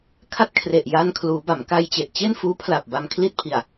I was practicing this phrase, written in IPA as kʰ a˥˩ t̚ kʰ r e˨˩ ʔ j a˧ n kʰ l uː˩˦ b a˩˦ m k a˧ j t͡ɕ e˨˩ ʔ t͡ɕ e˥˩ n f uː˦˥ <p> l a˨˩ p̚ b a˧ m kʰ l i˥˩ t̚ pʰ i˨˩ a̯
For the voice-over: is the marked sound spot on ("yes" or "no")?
no